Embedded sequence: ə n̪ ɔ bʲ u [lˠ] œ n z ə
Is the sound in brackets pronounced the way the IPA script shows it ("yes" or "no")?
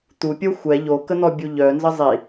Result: no